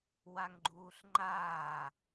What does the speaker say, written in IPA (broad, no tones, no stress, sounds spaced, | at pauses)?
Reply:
w a ŋ ɡ͡ǃ uː ɬ ŋ͡ǃ aː